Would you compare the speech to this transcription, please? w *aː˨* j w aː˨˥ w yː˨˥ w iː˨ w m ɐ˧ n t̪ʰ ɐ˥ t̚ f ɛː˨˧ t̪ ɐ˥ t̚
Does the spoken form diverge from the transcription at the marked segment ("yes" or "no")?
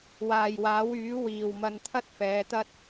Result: no